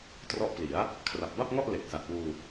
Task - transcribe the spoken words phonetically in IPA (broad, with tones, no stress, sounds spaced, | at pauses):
t r ɔ˦˥ ʔ p l i˩˦ a̯ | kʰ r a˨˩ p̚ b a˥˩ p̚ ŋ ɔ˥˩ ʔ l e˨˩ k̚ s a˨˩ t̚ w uː˧